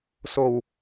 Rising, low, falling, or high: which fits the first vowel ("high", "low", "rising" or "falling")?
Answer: low